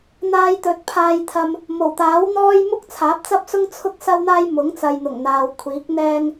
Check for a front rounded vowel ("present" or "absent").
absent